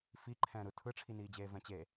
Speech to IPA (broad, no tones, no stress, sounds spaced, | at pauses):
f i ǃʰ ɛ̃ː ɾ ɯ tʰ ɯ ʈ͡ʂʰ i n iː d͡ʑ eː v ɛ̃ t͡ɕ e